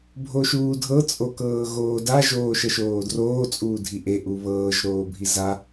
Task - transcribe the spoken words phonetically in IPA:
bʱ o ʃ uː dʱ ɤ t͡sʼ o k ɤː ɣ oː d a ʒ oː ʃ ə ʃ oː d r oː t͡sʼ uː dʱ i ʔ e ʔ u β ɤː ʒ ɾ oː bʱ i z a

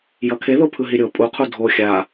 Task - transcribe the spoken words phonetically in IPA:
j ʌ kʰ e ð o pʰ ɯ ɦ i ɾʲ o pʼ u qʰ u dʱ o xʲ a

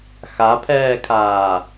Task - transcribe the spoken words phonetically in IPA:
x a pʰ ɛː kʰ aː

